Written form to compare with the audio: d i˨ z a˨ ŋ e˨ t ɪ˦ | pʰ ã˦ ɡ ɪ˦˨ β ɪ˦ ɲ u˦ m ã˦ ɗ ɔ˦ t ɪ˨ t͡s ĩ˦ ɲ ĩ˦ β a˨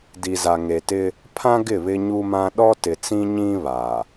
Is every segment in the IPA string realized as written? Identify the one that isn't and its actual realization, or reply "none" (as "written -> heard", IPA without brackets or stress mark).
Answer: none